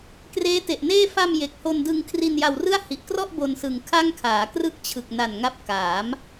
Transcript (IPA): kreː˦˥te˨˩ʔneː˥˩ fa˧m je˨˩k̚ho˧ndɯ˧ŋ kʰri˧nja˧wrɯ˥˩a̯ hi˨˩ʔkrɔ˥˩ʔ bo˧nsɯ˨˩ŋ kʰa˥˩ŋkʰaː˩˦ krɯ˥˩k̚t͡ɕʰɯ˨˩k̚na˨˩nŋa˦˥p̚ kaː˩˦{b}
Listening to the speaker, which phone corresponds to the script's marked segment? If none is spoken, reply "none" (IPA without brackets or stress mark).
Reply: m